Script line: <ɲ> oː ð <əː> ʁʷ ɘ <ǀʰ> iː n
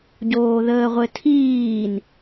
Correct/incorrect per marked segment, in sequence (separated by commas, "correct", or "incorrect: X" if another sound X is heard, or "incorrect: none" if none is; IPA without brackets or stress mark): incorrect: ɟ, correct, incorrect: tʰ